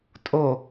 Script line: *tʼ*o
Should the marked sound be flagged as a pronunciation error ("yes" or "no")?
no